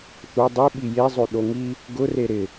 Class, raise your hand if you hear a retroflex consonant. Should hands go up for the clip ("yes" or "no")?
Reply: no